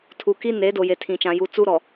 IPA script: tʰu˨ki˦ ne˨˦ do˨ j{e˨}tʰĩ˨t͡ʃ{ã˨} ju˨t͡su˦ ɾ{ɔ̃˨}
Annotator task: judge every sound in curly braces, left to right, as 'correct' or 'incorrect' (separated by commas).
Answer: correct, correct, incorrect